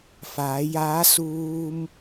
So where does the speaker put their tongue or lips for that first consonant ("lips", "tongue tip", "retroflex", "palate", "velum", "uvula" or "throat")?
lips